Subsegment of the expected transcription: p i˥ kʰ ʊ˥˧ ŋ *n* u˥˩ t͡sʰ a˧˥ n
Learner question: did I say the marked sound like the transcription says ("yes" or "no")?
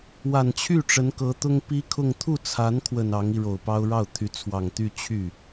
no